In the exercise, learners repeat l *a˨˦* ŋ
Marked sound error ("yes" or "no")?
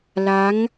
no